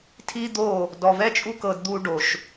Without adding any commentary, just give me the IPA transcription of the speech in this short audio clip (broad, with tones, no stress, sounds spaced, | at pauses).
tʰ i˦ d̪ o˦˨ | d ɔ˨ v ɛ˦ t͡ʃʼ u˦ k ɤ˧ d d̪ u˧ ɖ o˨ ʃ